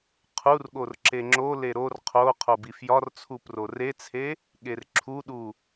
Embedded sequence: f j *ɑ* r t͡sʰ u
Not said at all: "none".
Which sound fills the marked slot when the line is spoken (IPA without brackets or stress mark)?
ɒ